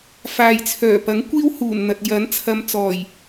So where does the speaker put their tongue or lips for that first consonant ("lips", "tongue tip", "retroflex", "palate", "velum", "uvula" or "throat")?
lips